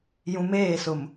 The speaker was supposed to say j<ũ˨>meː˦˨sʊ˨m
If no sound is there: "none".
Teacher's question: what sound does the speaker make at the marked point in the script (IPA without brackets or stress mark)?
ũ˨